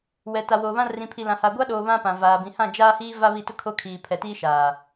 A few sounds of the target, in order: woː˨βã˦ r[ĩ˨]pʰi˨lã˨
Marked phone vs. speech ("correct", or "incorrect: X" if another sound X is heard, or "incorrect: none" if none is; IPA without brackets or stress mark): correct